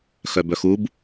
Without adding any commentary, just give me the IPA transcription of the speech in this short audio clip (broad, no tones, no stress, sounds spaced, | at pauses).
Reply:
x œ b œ x u b